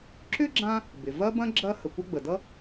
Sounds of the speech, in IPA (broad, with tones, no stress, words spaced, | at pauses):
ǁʏ˥ɡ͡ǁã˦ | bɪ˩ vɐ˦bɐ̃˦ ɡ͡ǁɐ˦ hə˩kʷʌ˦ ɡ͡bə˩dʌ˥